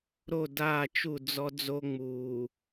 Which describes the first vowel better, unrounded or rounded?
rounded